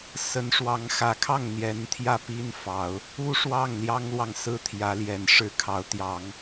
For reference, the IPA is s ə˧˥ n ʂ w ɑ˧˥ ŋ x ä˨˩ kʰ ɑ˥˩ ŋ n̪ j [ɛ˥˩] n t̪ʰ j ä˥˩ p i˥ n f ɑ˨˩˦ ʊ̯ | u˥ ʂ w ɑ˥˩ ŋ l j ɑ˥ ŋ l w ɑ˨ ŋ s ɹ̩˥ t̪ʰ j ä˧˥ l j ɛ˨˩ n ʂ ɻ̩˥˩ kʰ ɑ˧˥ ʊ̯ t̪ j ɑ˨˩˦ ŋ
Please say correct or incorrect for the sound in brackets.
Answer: incorrect